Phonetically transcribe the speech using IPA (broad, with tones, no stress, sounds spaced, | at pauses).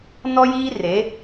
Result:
n ɔ˦ j iː˦ r e˨˦